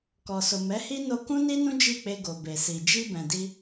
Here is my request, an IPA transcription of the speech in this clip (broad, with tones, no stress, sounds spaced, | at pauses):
k ɔ˨ s o˨ m ɛ˨˦ h i˦ n o˧ k ũ˦ n i˦ n ũ˦ d͡ʒ i˦˨ k͡p e˧ ɡ o˨ b e˨ s i˨ d͡ʒ i˧ b ɛ̃˨ d i˧